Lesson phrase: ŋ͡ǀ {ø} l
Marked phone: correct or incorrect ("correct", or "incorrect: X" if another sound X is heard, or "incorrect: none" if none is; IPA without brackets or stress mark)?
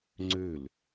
correct